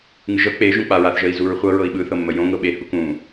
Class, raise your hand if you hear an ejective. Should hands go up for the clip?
no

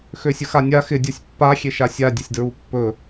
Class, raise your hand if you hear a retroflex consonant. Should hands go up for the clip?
no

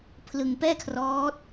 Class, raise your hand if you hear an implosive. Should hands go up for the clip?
no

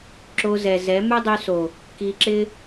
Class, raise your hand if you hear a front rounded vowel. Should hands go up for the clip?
yes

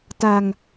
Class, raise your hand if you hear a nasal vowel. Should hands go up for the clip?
no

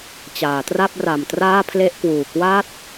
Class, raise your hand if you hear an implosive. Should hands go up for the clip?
no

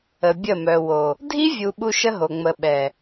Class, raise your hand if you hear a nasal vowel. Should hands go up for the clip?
no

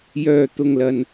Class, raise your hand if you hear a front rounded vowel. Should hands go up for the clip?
yes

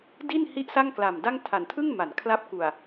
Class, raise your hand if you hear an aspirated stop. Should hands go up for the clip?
yes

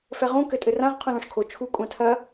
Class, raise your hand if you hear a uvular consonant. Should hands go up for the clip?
yes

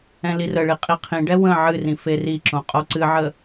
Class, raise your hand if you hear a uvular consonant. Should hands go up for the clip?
yes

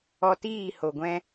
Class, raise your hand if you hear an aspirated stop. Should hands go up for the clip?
no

